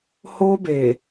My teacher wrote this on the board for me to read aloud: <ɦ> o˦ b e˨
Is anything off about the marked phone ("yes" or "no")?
yes